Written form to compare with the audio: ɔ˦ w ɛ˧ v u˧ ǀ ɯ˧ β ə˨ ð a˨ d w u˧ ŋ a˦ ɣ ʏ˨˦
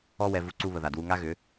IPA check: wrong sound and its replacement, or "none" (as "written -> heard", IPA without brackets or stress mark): ɯ˧ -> u˧